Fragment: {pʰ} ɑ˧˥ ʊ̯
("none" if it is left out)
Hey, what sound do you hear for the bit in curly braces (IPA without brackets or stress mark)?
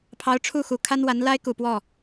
pʰ